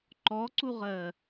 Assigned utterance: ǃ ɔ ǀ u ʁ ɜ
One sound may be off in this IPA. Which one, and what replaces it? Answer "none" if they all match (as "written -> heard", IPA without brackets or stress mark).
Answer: none